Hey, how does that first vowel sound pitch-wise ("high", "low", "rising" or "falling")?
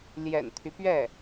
low